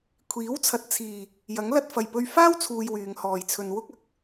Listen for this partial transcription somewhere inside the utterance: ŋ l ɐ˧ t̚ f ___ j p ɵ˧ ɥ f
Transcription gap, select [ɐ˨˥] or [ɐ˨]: ɐ˨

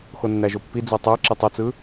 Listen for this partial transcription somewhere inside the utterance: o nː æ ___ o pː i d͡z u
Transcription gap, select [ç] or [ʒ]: ʒ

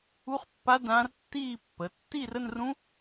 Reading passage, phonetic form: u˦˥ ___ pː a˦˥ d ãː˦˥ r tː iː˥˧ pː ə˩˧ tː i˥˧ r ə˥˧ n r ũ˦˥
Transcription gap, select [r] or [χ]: χ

